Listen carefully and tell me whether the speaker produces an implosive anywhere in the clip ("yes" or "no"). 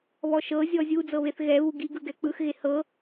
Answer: no